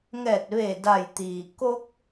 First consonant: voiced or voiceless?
voiced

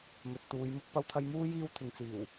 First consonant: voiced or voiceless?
voiced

